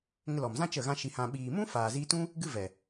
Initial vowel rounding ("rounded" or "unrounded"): unrounded